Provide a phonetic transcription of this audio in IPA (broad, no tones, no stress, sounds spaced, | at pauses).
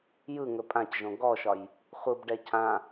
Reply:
j ɯ ŋ ɵ pʼ ã c ʒ õ ɡ ɔ ʃ ɒ j | χʷ ɯ b ɖ ɛ cʰ ã